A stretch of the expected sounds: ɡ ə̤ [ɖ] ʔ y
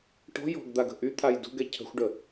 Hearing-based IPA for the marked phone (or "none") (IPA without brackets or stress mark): none